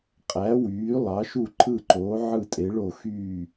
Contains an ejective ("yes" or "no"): yes